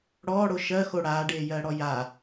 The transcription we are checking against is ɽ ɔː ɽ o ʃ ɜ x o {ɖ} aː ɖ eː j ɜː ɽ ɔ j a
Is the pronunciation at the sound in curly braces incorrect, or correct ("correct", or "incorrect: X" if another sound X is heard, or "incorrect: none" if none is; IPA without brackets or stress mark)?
incorrect: ɽ